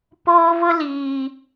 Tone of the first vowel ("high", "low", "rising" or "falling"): high